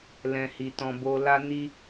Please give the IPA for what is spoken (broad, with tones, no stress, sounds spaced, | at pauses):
l ɛ̃˧ h i˧ t ɔ̃˧ b o˧ l a˦ n i˦